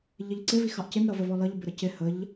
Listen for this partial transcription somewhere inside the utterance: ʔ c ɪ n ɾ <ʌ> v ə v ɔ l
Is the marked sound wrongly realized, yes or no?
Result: no